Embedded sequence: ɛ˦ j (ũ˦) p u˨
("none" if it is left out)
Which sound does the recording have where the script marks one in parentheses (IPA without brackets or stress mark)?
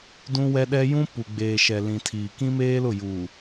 ũ˦